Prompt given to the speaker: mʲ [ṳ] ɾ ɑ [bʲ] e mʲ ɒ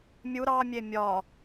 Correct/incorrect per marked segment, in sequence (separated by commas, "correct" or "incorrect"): incorrect, incorrect